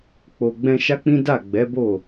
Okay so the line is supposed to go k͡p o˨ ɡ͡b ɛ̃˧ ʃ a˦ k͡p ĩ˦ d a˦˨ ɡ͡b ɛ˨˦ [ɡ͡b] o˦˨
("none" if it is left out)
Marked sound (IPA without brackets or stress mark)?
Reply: b